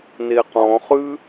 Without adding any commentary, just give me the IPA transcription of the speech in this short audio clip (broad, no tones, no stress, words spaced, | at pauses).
neqɔ̃χʉ